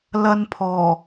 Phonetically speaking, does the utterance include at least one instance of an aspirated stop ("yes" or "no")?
yes